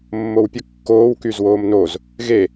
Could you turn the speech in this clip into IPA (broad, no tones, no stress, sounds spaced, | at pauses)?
mː o w pʲ ə kː oː w k y z w oː m n o z | ɣ e